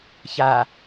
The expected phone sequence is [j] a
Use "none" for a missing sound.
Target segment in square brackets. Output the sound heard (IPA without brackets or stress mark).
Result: ç